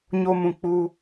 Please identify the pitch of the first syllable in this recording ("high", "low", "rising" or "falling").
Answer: high